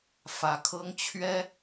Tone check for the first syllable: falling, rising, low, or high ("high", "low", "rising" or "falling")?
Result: rising